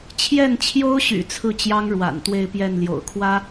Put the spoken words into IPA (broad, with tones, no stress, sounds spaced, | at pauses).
t͡ɕʰ j ɛ˥˩ n t͡ɕʰ j o˥ ʊ̯ ɕ y̰˨˩ t͡sʰ ɹ̩˥˩ t͡ɕ j ɑ˥ ŋ ɻ w a̰˨˩ n t̪ w e˥˧ ɪ̯ p j ɛ˥˩ n l j o̰˨˩ ʊ̯ kʰ w ä˥